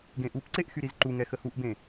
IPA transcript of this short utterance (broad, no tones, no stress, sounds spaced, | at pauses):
ɡ ẽ ʔ u p ǀ e ʔ x y ɾ i z ǃ u ŋ ɛ x ə h u ʔ b ẽ